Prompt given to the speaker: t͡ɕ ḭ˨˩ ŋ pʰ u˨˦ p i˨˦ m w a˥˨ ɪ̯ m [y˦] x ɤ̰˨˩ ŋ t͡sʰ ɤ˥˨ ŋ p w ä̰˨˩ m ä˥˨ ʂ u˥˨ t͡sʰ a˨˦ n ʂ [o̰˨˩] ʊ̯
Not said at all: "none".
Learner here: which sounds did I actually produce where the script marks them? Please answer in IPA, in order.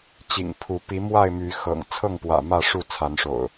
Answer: y˨˦, o̰˨˩

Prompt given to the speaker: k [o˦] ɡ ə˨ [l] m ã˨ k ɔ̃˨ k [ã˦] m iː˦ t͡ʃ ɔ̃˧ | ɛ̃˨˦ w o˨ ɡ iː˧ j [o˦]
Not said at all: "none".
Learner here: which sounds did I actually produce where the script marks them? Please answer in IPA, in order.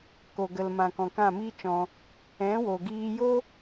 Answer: o˨, l, ã˦˨, o˦

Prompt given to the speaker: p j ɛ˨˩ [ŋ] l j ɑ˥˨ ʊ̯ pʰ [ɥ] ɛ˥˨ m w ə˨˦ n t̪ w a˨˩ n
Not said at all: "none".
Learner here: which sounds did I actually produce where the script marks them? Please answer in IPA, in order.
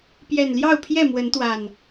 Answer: n, j

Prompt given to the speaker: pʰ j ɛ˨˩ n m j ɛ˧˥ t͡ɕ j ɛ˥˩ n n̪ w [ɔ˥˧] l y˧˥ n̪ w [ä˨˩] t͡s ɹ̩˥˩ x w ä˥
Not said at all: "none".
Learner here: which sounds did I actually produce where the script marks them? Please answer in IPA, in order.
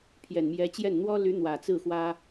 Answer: ɔ˥, ä˨˩

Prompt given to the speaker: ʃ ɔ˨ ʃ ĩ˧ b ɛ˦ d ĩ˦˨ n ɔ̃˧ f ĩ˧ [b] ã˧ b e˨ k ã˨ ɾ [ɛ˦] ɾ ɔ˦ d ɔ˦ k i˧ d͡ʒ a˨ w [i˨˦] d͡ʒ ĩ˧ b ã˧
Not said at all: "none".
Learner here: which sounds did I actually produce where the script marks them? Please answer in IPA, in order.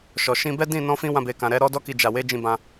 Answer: w, ɛ˨˦, e˨˦

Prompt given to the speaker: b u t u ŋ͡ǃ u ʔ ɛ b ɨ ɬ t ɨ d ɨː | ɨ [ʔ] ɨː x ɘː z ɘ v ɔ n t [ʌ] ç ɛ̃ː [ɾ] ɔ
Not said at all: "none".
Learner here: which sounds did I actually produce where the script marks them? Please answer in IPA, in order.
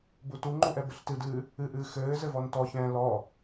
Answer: ʔ, ɔ, l

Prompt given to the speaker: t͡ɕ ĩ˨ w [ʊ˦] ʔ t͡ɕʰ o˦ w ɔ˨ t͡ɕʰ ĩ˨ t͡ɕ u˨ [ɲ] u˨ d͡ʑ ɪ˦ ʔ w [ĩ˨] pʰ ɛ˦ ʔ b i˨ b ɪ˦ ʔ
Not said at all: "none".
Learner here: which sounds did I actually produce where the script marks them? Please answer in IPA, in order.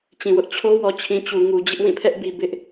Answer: ʊ˦, ŋ, ĩ˦˨

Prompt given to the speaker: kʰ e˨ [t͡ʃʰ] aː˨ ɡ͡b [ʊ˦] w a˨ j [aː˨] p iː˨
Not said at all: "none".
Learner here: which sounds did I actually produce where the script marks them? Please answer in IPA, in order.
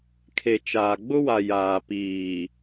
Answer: t͡ʃ, ʊ˦, aː˨

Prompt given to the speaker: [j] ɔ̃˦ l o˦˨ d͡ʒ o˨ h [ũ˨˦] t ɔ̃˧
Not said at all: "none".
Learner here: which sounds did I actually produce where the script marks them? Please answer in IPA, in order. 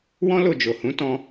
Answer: w, ũ˨˦

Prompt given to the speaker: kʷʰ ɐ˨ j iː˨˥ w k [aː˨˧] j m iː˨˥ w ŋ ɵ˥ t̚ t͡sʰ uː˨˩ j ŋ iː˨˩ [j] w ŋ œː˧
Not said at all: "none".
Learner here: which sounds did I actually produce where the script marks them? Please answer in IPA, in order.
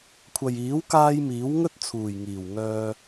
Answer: aː˧, none

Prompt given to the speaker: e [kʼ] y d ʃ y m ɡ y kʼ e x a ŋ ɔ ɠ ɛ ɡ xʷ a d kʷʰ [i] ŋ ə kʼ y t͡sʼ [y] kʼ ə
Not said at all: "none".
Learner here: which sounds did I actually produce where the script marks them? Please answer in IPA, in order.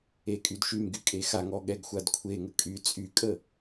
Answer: kʼ, e, y

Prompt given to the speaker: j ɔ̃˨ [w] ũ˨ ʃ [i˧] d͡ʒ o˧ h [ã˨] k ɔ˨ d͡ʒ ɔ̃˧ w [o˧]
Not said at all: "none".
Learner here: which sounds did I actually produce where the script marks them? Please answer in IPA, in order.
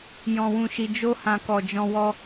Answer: w, i˨, ã˨, ɔ˧

